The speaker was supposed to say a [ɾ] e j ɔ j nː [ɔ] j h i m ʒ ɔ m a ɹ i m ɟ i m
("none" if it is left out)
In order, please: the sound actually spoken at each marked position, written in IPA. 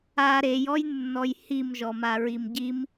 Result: ɾ, ɔ

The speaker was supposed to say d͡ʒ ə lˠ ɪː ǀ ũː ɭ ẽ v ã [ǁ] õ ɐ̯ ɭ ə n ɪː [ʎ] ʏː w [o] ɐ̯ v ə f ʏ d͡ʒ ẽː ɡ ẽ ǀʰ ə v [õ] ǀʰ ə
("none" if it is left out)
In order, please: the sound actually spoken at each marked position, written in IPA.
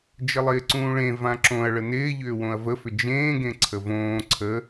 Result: ǁ, ʎ, õ, õː

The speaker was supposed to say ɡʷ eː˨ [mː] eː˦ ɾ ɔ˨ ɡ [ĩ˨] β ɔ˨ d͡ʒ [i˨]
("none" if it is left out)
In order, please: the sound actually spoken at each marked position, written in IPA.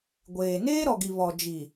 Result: n, i˨, i˨

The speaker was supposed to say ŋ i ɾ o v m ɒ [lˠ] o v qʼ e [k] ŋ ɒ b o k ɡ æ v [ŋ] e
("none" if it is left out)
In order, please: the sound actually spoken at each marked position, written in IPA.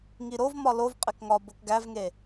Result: l, k, ŋ

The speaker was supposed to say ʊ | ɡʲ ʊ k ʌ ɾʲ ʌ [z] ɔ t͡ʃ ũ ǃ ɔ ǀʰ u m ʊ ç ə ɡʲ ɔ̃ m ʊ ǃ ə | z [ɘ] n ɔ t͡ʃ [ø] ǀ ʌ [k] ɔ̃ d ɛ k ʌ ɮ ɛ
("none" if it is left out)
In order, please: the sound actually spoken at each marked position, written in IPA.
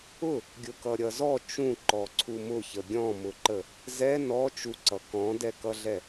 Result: z, ɛ, u, k

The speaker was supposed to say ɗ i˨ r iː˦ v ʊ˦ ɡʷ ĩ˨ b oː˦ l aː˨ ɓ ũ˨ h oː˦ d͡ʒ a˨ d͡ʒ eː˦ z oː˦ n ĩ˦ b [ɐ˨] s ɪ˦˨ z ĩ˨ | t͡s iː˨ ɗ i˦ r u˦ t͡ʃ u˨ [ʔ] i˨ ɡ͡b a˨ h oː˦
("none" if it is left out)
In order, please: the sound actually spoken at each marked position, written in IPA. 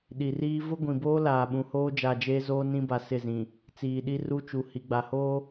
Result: a˨, h

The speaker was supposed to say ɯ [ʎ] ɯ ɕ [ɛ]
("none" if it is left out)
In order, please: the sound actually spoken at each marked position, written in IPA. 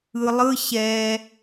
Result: lˠ, ɛ

